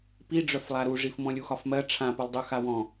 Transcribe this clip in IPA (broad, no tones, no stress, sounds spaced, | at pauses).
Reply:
p i ɖ͡ʐ œ f lˠ a ɾ u ʐ i f m ɔ̃ lʲ u x ɒ f m ɜ ʈ͡ʂʰ ã p u lˠ dˤ u x a w ɔ̃